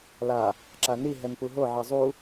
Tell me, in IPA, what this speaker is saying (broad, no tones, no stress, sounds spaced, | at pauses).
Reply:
l a | ǁ a n i ɦ ɛ n p u ɦ o ʕ ɤ zˤ u